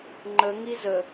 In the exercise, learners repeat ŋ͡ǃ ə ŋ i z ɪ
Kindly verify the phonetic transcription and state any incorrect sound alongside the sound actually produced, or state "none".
ɪ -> ə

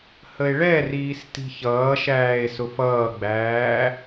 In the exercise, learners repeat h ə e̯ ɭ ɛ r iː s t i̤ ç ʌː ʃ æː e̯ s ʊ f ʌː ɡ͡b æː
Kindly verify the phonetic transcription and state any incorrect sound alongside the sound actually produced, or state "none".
none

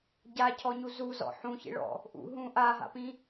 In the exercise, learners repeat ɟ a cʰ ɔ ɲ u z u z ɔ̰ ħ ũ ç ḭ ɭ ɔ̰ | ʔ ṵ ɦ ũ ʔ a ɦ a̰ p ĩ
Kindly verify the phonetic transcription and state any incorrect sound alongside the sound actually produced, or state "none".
none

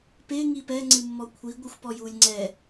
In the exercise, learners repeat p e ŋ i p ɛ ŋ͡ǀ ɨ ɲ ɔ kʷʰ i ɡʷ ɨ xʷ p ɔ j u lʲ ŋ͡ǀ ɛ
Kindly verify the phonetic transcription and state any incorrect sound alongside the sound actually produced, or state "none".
ɲ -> mː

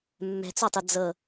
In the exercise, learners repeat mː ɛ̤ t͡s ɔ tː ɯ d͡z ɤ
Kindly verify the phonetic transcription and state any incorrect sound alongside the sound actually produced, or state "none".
tː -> tˤ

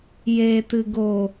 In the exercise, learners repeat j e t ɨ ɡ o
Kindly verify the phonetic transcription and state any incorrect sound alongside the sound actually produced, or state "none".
none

